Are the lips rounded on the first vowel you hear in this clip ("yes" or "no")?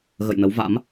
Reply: no